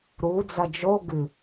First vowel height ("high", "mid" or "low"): high